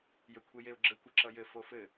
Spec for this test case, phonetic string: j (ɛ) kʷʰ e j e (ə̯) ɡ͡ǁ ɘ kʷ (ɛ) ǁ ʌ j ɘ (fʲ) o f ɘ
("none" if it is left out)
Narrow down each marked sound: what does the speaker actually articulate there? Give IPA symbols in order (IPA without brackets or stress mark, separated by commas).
ɘ, ʊ̯, ɘ, f